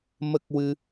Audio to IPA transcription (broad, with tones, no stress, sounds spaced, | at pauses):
m ə˦˥ k̚ w ɨ˧